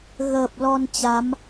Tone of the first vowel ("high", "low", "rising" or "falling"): low